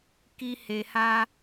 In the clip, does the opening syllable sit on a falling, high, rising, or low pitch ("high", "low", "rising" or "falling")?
high